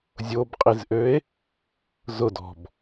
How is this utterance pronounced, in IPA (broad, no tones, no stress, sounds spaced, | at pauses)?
zʲ o b qʼ i z ʔ ø e̯ | z ʊ d ɔ̤ b